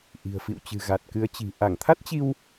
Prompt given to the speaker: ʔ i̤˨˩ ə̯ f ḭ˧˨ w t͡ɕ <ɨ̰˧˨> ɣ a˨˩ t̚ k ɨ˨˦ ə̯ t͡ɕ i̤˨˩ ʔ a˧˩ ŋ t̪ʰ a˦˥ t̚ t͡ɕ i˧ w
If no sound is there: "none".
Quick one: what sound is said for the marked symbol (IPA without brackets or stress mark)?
ɨ̤˨˩